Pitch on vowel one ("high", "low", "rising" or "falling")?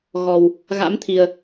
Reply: low